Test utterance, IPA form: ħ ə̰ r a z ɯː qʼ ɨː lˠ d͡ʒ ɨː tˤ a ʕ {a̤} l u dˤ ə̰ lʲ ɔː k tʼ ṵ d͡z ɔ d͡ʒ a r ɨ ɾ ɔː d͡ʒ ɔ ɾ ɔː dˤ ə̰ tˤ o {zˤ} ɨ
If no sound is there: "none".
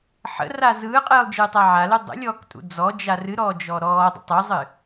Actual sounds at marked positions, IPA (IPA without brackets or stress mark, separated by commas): a, zˤ